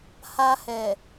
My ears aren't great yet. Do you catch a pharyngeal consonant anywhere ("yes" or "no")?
no